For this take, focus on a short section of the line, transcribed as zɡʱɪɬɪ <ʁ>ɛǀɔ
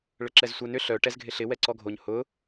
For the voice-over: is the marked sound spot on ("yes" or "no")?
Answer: no